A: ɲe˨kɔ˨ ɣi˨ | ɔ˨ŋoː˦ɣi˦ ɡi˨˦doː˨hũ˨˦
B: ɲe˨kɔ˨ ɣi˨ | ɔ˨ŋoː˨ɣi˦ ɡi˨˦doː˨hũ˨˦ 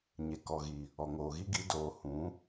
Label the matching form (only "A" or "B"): B